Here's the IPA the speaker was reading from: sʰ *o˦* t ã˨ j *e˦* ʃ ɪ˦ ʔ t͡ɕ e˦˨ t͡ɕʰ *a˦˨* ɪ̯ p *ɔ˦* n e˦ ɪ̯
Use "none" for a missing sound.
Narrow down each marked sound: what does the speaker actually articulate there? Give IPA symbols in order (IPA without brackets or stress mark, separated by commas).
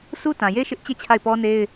u˦, e˦, a˦˨, ɔ˦